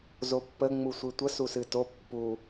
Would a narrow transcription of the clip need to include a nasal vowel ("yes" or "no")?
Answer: no